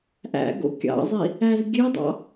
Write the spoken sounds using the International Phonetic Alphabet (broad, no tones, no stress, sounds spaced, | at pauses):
ʔ æ̰ ɡ o̰ kʲ ɑ̰ zˤ i | æ z ɡʲ ø dˤ ɑ̰